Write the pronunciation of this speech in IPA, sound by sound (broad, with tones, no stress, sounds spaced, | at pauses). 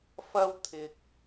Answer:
f ɐ˥ w t̪ʰ ɪ˧ k̚